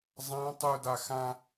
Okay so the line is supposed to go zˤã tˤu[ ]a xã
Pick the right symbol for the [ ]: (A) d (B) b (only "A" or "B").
A